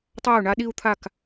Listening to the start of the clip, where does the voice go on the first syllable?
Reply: falling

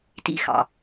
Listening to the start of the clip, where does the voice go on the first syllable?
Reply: high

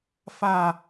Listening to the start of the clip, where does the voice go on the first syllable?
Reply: falling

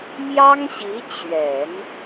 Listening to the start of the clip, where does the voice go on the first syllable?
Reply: high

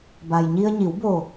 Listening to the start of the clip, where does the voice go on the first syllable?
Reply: low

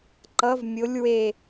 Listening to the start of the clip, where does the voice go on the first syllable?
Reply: rising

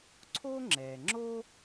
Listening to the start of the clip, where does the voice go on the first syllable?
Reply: high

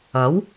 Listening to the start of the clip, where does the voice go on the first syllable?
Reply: rising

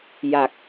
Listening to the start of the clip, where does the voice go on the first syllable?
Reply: low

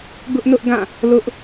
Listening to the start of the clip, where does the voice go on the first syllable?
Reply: high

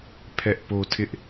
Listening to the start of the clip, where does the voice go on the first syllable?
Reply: high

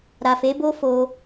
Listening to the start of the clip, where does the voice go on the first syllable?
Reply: low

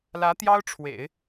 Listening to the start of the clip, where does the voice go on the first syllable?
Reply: rising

